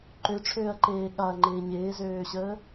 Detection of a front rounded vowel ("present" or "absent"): present